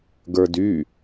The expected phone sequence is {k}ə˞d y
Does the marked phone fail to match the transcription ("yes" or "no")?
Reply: yes